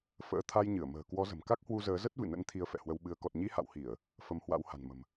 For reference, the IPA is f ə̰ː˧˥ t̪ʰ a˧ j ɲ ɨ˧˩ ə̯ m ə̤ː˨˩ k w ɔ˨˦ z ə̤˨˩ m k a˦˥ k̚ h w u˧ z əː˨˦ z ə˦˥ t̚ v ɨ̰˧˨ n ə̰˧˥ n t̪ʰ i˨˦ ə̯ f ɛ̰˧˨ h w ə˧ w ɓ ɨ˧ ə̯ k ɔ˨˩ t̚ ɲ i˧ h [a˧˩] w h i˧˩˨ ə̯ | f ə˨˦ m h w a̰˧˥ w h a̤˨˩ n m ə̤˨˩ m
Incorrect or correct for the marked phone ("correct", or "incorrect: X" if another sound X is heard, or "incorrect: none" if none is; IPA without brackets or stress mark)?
incorrect: a̰˧˨